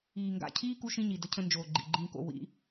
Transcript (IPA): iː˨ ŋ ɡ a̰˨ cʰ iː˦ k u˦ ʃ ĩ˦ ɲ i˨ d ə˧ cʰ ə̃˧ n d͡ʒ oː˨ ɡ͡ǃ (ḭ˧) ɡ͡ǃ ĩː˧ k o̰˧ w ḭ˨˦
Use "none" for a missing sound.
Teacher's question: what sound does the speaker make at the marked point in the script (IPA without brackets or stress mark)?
ḭ˨